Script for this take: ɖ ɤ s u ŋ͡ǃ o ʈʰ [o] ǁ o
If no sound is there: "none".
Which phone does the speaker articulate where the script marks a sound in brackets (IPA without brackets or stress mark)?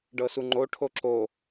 o